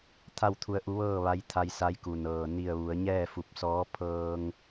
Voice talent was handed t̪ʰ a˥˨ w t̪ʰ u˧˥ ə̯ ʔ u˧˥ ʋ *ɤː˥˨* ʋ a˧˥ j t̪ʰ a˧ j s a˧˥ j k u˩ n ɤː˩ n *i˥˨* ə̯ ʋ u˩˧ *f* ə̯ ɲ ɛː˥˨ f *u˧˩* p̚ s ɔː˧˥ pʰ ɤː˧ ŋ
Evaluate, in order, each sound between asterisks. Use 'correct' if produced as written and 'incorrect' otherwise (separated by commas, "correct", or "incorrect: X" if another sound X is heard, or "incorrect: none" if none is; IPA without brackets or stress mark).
correct, incorrect: i˧˩, incorrect: none, correct